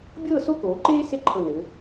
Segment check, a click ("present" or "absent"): present